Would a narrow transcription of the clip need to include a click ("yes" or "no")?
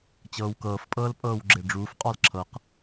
yes